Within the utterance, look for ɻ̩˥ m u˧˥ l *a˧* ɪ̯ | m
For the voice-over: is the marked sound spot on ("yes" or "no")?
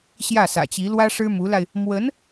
yes